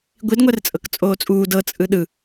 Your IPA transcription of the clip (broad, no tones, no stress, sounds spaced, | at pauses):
ɡʷ i d ŋʷ ɛ r t͡sʼ ɤ k t͡sʼ oː t͡sʼ uː d ɤ t͡sʼ ɯ ɗ ɯ